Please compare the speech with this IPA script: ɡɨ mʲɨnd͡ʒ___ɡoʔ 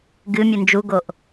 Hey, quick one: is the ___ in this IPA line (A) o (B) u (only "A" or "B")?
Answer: B